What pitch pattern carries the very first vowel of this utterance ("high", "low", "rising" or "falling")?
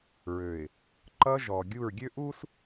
low